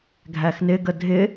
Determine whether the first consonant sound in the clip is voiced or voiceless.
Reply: voiced